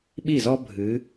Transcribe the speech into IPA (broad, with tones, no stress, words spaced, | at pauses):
ɓi˥˩zɔ˥ bʱɨ˨˦